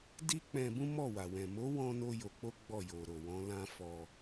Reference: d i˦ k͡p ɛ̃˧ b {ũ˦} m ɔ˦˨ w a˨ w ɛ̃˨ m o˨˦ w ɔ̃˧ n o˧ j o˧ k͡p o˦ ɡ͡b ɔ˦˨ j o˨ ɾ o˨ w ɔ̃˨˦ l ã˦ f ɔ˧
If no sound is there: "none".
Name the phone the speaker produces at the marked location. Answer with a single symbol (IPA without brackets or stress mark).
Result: ũ˦